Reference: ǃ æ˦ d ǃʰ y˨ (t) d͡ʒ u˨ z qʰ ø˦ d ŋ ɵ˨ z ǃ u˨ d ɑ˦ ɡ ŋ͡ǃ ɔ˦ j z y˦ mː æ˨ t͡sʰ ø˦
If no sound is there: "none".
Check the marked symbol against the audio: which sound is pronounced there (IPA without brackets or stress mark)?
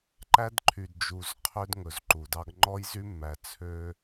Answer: d